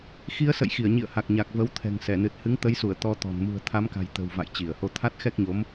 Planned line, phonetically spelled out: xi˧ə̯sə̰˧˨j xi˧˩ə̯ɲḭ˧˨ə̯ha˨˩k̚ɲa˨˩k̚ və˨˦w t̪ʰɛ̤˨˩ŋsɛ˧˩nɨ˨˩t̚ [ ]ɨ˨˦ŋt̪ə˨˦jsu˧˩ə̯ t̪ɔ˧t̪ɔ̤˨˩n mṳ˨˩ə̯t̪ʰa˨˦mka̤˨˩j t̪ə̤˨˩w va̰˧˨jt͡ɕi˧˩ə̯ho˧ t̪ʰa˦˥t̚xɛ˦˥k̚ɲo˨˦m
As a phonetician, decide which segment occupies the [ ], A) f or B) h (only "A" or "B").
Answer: B